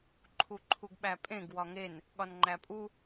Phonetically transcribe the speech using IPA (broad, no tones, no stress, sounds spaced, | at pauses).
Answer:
ǃʰ u ǃʰ u ɡ ɓ æ pʼ ẽ ɡ w ɒ ŋ e n | ɠ ɒ n ŋ͡ǃ æ pʼ u